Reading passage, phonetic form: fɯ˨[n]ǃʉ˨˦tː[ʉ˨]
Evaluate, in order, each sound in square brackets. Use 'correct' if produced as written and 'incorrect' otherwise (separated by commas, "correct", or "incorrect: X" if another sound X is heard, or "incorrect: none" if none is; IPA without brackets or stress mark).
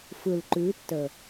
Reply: incorrect: l, incorrect: ə˨